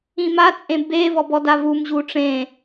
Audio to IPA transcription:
ĩ m a t͡sʼ ẽ b e v ɔ b ɔ d a v u m ʑ u ʈ͡ʂ ẽ

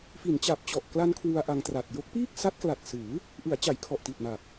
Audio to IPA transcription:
f i˩˦ n t͡ɕ a˨˩ p̚ t͡ɕ ɔ˨˩ ʔ k l a˧ n kʰ w u˧ a̯ ʔ a˧ ŋ t r a˨˩ t̚ j o˦˥ k̚ p iː˥˩ k̚ s a˦˥ t̚ k l a˨˩ t̚ s ɯː˩˦ | ʔ ɯ˩˦ a̯ t͡ɕ a˩˦ j kʰ ɔ˨˩ ʔ t i˨˩ t̚ m a˨˩ p̚

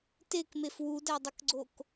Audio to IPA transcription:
t e k m e f w u d æ dˤ ə k ɡ͡ǀ o k

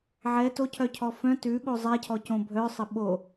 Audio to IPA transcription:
ʕ ɛ t o cʰ œ cʰ ɔ f œ̃ t ʉ ɓ o zˤ ɛ cʰ ɔ c õ bʱ œ sˤ ə ɓ o

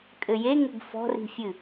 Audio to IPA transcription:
kʼ ɘ j e ŋ ɘ ɡ f ɔ̤ r i̤ fʲ ɨ

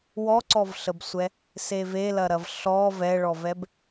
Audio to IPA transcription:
w ɔ ǀ ɔ v ɬ ə b sʷ ɛ | s e v e l ɐ ɾ ɐ v ɬ ɔ v ɛ ɭ ɔ v ɛ b

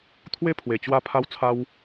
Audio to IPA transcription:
t̪ʰ w e˦ pʰ w e˨˩ t͡ɕ w a˧ pʰ a˧ w t͡sʰ a˧ w

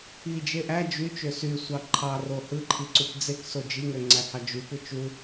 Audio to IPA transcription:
i d͡ʒ e ʔ æ d͡ʒ y t͡ʃ ø s y sʷ ɑ ǃʰ ɑ r o h ɯ ǃʰ i ǀ u p d͡z e k s o d͡ʒ i ŋ ø ŋ͡ǀ æ h ɑ d͡ʒ y p ɯ t͡ʃ u

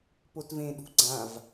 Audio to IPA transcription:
p o t v ẽ ɗ ṳ ɡ͡ǀ ã v

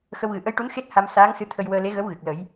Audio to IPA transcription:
x ə˧ w ɣ ɨ˨˩ ʔ ə˧˥ j ʈ u˧˥ n x e˦˥ t̚ h a˧ m s aː˧˥ ŋ s ɨ˧˥ t̪ʰ ə˧ j w əː˧ l e˧˥ ɣ ə˧˥ w ɣ ɨ˨˩ k̚ l ə˨˩˦ j

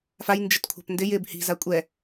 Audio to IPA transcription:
f a j n d͡ʒ ɪ t kʷʰ a̤ p n d ɪ j ɪ b h i̤ z a kʷʼ ɛ

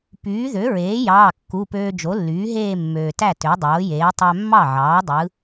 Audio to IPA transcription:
p yː˩˥ ð ø˩˥ ɹ eː˩˥ j ɑː˩˧˩ kː u˩˧˩ p øː˧ d͡ʒ o˩˥ lː yː˩˥ ɦ eː˥˧ mː øː˩ t æ˥˩ t ø˩˥ dˤ oː˩˥ j eː˩˥ tˤ æ˧ mː ɑ˥˩ ʕ ɑː˩˥ dˤ ɯ˩˥

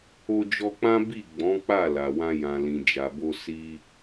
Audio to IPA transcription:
o˧ d͡ʒ ɔ˧ k͡p ã˦ b i˦˨ ɡ͡b ɔ̃˨˦ k͡p a˦˨ l a˨ w ã˧ j ã˨ l ĩ˨ d͡ʒ a˨ b o˧ s i˦

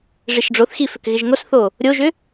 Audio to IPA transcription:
ʐ i ʃ ɖ͡ʐ o θ x i f ʏ k ɣ ɪ ʒ ŋ o s θ o | ɾʲ o ʒ ʏ

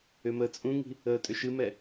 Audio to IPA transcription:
ʏ m əː t͡sʼ ũ ŋ i̤ | əː tʼ ʏ ʃ ɨ m ɛ

